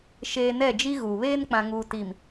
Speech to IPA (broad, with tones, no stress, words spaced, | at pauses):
ʃeː˨ nɛ˦˨d͡ʒi˦ɣuː˨ βeː˦nk͡pã˨ŋuː˨ ti˨m